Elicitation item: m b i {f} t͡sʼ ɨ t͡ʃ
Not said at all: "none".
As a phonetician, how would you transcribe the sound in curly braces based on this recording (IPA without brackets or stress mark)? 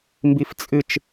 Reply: f